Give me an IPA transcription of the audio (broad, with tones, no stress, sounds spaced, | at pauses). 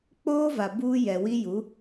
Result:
k͡p oː˦ v a˨ b uː˦ j ɛ˨ w i˦ j u˨˦